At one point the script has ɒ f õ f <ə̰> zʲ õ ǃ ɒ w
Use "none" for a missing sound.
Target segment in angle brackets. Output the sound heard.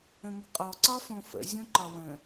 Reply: ə̰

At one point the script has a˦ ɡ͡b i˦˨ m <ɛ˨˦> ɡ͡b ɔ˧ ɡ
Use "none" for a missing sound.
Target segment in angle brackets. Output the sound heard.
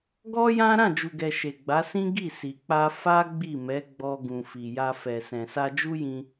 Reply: ɛ˨˦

